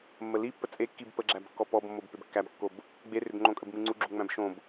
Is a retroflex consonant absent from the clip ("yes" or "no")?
yes